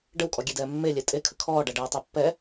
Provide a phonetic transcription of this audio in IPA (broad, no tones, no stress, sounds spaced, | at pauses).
ɖ ə w kʼ ɔ ɡʲ e d ɛː mː e lʲ ɛ tʼ e kʰ ə kʰ ɔː ɖ a ɖ ɛː tˤ a pː ɛ